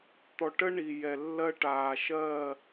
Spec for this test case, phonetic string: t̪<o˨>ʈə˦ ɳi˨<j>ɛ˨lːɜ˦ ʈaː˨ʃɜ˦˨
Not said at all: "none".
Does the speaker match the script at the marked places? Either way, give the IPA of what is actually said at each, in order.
ɔ˨, j

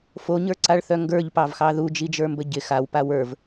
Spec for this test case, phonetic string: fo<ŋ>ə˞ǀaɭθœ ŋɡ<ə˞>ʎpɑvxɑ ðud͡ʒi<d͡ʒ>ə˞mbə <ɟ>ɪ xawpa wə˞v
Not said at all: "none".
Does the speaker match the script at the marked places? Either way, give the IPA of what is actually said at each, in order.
ɲ, ə˞, d͡ʒ, ɟ

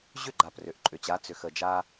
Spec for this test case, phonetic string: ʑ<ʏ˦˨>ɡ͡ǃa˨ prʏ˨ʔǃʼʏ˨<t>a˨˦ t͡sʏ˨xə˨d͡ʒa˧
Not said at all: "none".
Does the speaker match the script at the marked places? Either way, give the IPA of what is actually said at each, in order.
ʏ˦˨, t͡ɕ

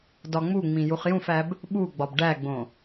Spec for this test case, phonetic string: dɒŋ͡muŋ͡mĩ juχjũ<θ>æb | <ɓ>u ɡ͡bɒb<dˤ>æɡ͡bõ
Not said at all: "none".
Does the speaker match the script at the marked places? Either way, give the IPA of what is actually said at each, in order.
f, ɓ, ɖ

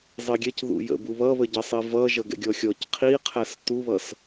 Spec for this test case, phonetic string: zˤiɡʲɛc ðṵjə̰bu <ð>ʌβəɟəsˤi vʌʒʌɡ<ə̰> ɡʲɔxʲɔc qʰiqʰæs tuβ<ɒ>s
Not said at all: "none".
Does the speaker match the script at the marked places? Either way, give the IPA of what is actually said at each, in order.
β, ɛ̰, ʌ

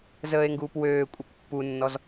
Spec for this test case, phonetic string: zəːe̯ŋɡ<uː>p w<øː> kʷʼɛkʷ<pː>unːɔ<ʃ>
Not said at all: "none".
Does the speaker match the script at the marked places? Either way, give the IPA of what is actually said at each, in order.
uː, øː, pː, z

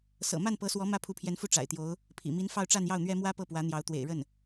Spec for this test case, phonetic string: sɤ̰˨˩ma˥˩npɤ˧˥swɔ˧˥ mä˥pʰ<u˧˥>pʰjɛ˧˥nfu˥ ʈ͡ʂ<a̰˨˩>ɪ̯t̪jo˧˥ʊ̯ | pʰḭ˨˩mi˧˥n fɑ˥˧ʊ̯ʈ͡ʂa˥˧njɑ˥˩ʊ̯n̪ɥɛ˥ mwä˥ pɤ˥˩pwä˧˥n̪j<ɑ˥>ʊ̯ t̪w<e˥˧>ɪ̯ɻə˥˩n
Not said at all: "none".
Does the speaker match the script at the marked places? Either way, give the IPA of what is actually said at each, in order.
u˧˥, a̰˨˩, ɑ˧˥, ḛ˨˩

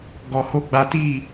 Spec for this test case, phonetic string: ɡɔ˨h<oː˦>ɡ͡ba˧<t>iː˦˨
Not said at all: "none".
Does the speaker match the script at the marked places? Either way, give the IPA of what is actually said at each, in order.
o˦, t

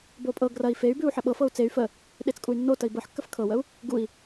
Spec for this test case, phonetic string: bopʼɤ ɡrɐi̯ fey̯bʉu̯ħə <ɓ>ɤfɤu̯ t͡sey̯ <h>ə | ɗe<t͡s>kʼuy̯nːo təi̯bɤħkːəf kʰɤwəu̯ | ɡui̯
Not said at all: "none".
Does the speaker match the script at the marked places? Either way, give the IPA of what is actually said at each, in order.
ɓ, f, t͡s

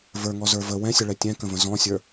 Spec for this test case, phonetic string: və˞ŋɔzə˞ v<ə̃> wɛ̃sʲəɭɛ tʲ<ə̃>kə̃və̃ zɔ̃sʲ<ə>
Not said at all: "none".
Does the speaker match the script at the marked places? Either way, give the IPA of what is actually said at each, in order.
ə, ɛ̃, ə˞

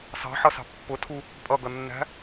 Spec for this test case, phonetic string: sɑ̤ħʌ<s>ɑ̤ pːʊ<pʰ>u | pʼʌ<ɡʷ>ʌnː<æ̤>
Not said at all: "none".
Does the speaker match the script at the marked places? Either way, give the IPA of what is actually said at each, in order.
s, tʰ, ɡ, æ̤

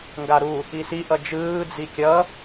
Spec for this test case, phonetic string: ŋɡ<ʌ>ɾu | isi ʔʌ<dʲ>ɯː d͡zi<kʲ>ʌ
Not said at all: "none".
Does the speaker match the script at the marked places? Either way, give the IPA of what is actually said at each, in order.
a, d͡ʒ, kʲ

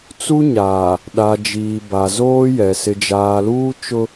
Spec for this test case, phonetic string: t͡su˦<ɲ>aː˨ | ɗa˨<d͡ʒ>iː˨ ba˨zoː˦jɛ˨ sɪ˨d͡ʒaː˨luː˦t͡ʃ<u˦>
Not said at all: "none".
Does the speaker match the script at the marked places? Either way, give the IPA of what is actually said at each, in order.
ɲ, d͡ʒ, ʊ˦

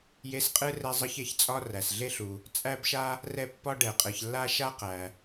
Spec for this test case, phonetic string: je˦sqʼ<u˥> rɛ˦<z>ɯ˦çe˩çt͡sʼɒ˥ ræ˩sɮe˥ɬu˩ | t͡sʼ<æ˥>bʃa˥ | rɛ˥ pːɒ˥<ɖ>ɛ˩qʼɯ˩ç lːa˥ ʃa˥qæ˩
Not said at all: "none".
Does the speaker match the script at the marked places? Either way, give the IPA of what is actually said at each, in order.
ɯ˥, zˤ, æ˥, ɖ

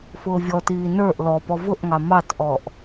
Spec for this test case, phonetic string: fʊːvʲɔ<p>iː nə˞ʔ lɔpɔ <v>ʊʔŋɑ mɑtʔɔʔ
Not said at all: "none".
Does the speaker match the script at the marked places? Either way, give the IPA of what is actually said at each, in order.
t, v

